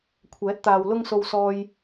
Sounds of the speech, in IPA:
kʷʰ ɛː˨˥ t̚ t̪ aː˨ w l ʊ˧ ŋ s o˨ w s ɔː˨ j

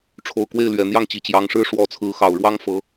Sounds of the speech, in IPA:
ʈ͡ʂʰ o˨˩ ʊ̯ k w e˥˩ ɪ̯ l ɥ ɛ˨˩ n̪ j ɑ˥˩ ŋ t͡ɕ i˨˩ t͡ɕ j ɑ˧˥ ŋ ʂ ɻ̩˥ ʂ w ɔ˧˥ t͡sʰ ɹ̩˧˥ x ɑ˨˩ ʊ̯ ɻ w ɑ˥ ŋ f ɤ˧˥

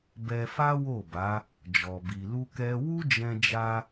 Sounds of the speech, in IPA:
b ɛ˧ f a˦ w o˦˨ b a˨˦ | d͡ʒ ɔ˧ b i˧ l u˦ k ɛ˦ w u˦ d͡ʒ ɛ̃˧ d͡ʒ a˧

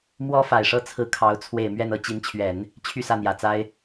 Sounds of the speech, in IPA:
m w ɔ˥ f a˨˩ ɪ̯ ʂ ɤ˥˩ t͡sʰ ɹ̩˧˥ kʰ ɑ˧˥ ʊ̯ t͡sʰ w e˨˩ ɪ̯ m ɥ ɛ˥˧ n ɤ˥˩ t͡ɕ i˧˥ n t͡ɕʰ ɥ ɛ˨˩˦ n | t͡ɕʰ y˥˧ s ä˥˩ n̪ j ä˨˩ t͡s a˥ ɪ̯

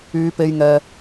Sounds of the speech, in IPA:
yː˨˧ p e˨ j ŋ ɛː˨

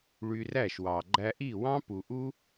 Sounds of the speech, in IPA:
ɭ y˧ r æ˦˨ ʃ w ɑ˨ ɡ͡ǃ æ˧ ʔ i˦˨ w ɑ̃˦ p u˨ ʔ u˦

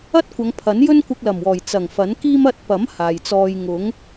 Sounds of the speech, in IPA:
ɐ˥ t̚ kʷ ɐ˨˧ ŋ pʰ ɐ˨˥ n j ɵ˥ n kʷ ɪ˧ k̚ l ɐ˨˩ m w ɔː˨˩ j t͡s ɐ˨˩ ŋ f ɐ˨˥ n k iː˥ m ɐ˧ t̚ p ɐ˨˥ m h aː˨ j t͡s ɔː˧ j ŋ ʊ˨˥ ŋ

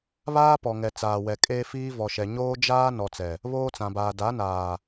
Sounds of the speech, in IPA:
β aː˦ p ɔ˨ ŋ ɛ˨ t͡s aː˨ w ɛ˨ kʼ eː˦ f iː˦ v ɔ˨ ʃ ɛ˨ ɲ oː˦ d͡ʒ aː˦ n ɔ˨ t͡s ɛ˨ | β oː˦ t͡s ã˨ b aː˨ d a˨˦ n aː˨

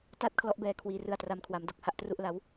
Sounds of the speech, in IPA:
t a˥˩ t̚ kʰ l ɔ˦˥ ʔ b ɛː˧ kʰ w iː˧ r ɯ˧ a̯ t r a˦˥ m kʰ w a˨˩ m d o˨˩ k̚ h a˥˩ ʔ t r u˥˩ ʔ l a˦˥ w

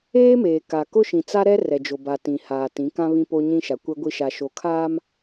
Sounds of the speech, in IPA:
eː˦ m eː˨ k a˨ k ʊ˦ ʃ ĩ˨ t͡s a˦ ɾ ɛ˦ r ɛ˨ d͡ʒ o˨ b a˨ t ĩ˨ h aː˨ t ĩ˨˦ k ã˦ β ĩ˦ p o˦ ɲ ĩ˦ ʃ a˨ kʷ ɛ˦ ɡʷ i˦ ʃ a˦ ʃ o˦ kʰ aː˦ m

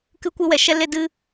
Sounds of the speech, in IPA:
k ɨ˧ kʷ ɨ˧ w ɛ˨ ʃ ɛ˧ l e˧ d ɨ˧

